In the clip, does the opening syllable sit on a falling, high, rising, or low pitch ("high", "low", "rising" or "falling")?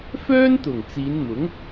high